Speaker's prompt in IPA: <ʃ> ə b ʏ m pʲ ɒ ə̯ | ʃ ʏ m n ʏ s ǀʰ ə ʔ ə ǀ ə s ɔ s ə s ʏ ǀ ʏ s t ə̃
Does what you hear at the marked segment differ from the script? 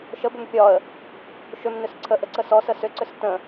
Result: no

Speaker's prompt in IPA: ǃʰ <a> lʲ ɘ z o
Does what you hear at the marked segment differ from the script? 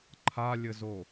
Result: no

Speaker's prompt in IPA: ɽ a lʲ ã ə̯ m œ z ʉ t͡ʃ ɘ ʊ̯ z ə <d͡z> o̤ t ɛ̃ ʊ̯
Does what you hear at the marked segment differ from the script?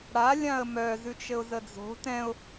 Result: no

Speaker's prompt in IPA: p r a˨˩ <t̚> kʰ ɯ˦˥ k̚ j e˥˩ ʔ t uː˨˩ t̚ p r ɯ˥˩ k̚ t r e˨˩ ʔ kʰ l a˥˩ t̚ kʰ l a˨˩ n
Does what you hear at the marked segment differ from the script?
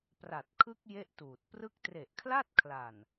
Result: no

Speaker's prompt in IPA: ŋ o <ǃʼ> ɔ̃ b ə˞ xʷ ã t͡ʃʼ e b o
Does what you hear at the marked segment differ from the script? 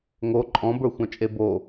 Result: no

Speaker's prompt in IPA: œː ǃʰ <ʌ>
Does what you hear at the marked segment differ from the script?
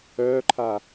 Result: yes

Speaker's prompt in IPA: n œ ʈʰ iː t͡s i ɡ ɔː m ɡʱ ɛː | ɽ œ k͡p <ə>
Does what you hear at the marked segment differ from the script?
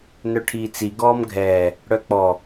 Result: yes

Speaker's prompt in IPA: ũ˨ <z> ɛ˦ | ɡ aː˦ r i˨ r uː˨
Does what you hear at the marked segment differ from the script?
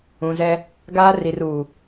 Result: no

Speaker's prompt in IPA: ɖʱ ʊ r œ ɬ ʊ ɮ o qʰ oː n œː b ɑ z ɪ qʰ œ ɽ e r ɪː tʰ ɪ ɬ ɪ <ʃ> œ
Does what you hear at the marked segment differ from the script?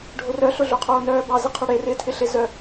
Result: yes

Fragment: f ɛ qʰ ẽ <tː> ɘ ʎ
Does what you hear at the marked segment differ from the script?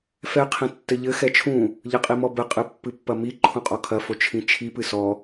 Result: no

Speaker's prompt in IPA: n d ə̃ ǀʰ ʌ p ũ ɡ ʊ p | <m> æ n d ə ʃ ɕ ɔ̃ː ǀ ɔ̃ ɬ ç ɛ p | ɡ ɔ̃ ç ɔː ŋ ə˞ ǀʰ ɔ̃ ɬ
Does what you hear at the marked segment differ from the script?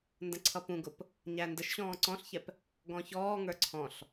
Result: yes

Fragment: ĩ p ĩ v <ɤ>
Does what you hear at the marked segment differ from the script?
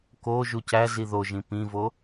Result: yes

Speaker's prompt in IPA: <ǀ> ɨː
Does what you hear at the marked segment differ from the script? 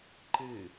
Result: yes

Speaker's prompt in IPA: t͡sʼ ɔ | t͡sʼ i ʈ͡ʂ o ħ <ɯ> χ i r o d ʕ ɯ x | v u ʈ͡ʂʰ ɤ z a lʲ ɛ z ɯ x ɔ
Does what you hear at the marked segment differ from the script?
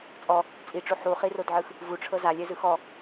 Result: yes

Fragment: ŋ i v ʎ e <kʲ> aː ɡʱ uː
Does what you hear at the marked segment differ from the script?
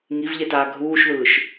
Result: yes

